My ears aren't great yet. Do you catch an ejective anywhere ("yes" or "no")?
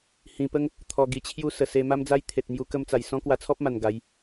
no